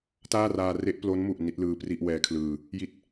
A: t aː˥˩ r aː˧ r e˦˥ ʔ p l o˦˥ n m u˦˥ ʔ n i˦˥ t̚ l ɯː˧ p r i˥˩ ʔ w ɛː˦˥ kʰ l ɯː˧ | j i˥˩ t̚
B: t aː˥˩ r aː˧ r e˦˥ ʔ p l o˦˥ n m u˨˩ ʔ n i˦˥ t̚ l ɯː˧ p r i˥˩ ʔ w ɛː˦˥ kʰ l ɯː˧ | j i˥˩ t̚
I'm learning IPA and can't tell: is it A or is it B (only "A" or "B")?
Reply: B